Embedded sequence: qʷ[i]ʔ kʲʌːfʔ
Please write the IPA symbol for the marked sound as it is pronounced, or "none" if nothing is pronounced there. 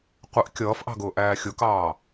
ɪ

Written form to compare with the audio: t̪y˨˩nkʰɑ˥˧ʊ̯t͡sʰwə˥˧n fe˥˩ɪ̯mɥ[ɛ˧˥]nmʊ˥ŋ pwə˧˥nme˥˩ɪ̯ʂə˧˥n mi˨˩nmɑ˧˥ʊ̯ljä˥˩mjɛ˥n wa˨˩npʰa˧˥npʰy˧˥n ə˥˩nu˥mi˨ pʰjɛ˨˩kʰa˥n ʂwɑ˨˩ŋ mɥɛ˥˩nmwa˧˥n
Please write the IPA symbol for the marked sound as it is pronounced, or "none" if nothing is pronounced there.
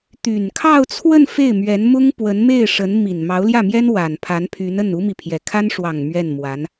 ɛ˧˥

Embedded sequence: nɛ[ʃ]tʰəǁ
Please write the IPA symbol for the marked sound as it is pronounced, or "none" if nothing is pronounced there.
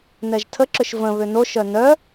ʒ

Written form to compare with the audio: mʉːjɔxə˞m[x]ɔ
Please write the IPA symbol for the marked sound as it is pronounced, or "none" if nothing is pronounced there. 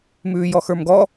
ɡ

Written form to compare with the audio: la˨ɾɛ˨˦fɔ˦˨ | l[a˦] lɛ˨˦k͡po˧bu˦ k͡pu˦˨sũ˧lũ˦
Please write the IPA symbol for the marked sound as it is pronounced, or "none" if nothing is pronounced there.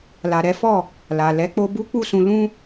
a˨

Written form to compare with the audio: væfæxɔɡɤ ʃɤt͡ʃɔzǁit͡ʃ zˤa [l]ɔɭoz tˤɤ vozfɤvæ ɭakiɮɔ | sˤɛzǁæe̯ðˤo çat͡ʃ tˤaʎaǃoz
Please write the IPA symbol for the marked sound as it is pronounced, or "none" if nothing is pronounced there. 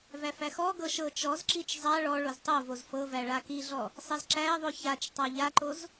ɭ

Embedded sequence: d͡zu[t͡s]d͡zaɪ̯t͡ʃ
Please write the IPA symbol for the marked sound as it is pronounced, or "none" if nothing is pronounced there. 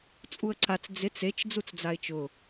t͡s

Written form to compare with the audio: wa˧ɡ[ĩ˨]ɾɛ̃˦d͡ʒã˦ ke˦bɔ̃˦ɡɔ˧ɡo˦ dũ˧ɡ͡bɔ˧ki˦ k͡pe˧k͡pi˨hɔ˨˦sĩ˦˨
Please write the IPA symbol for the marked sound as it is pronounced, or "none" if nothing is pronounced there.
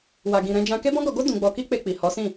ĩ˧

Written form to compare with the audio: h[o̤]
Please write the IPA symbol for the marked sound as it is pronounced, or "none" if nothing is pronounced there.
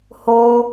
o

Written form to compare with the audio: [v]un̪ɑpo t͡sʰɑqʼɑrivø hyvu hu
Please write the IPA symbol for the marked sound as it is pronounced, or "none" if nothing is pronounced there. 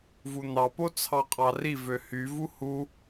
v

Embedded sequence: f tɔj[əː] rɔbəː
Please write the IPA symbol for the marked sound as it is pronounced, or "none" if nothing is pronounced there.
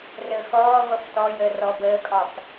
əː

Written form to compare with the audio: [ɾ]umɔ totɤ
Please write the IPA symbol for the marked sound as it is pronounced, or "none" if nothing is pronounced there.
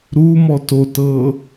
ɾ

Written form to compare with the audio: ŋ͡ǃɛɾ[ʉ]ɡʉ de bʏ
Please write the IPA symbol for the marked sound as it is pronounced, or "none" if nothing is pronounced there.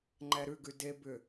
ʉ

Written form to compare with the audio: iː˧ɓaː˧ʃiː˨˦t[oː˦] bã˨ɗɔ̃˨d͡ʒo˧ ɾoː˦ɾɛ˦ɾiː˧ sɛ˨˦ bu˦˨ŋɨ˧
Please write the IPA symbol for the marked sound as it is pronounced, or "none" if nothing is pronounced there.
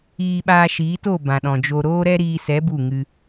oː˦˨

